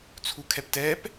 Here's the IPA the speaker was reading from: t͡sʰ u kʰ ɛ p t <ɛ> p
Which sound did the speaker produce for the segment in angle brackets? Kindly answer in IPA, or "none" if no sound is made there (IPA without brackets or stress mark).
ɛ